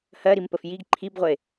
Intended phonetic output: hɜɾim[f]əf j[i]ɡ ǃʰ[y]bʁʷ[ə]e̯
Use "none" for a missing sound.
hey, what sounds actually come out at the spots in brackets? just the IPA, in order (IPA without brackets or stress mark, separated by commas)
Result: p, i, i, ə